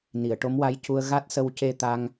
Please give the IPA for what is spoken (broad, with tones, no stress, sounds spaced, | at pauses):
n i˨˩˨ ə̯ ʈ o˧˥ m w a˧˥ j c u˧ ə̯ ɣ a˦˥ t̚ s ə˧ w c e˧ t̪ a˧ ŋ